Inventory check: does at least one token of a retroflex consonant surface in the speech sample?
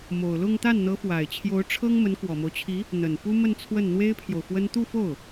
yes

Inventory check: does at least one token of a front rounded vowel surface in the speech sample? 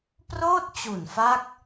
no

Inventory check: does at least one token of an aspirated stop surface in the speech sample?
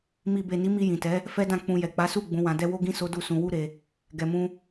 no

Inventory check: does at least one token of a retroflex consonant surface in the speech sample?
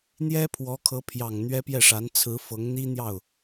yes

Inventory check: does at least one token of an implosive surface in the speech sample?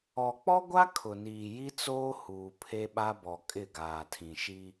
yes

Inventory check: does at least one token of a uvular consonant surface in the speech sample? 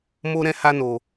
no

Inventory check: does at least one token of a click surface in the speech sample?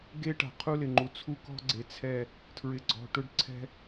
yes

